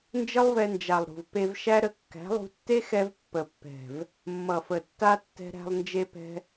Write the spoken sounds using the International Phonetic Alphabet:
n d͡ʒ ə˦ lˠ v ɛ˧ n d͡ʒ a˨ lˠ ɾ ṳ˨ v p e˧ v ʃ æ˦ ɾ ə˧ kː æ̤˨˦ lˠ ṳ˧ tː e˦ x ɛ˧ v pː ə˨ pː ɛ̤˨ v | mː ʌ˨ f ə˨ tː a˧ tː ɛ̤˧ ɾ æ̤˧ lˠ n d͡ʒ e˧ p ɛ̤˧

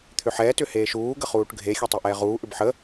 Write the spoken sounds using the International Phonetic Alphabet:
t̪ʰ ʏ ħ ɛː t ʏ h eː ʃ uː ɡ ə χ uː ʈ ɡʱ e xʲ ɛ tˤ e ʔ ɛː ʁ uː ʔ ʏ b ħ ə

